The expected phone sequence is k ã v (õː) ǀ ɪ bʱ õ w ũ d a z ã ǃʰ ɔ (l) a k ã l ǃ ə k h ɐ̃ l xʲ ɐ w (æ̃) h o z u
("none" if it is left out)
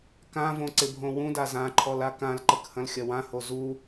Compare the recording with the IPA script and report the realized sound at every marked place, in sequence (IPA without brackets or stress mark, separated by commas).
õ, l, ã